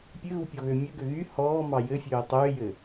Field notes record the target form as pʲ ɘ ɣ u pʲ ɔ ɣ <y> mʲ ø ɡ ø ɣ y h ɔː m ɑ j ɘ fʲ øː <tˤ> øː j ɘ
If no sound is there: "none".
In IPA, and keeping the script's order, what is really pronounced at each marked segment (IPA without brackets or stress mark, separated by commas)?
ø, tˤ